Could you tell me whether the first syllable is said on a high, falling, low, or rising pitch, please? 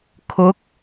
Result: rising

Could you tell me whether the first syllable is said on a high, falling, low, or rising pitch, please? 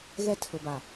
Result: high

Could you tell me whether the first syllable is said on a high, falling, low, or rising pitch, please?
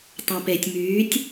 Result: low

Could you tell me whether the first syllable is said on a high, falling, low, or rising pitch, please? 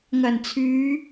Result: low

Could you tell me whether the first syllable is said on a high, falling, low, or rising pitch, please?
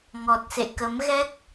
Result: low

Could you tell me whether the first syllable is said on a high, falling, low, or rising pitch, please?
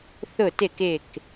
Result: falling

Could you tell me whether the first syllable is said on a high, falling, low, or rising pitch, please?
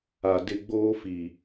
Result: low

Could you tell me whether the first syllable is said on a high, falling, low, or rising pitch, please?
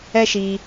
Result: high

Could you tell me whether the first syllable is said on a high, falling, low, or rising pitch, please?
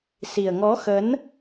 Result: low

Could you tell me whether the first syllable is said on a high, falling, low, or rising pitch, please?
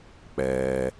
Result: low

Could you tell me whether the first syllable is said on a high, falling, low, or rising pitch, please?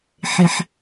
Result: high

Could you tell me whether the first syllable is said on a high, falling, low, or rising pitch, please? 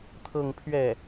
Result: falling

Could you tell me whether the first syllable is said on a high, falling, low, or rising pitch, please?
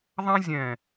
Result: high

